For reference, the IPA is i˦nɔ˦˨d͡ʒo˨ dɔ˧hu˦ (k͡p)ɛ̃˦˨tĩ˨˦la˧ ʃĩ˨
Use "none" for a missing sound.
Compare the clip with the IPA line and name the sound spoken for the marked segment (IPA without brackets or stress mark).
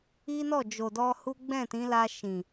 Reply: ɡ͡b